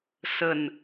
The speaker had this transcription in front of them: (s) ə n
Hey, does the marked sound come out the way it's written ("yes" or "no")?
yes